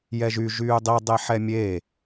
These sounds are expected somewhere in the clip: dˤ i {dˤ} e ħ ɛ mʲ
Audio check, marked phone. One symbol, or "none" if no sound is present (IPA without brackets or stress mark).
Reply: dˤ